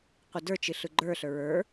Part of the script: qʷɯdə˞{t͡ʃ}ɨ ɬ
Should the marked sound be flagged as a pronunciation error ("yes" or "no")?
no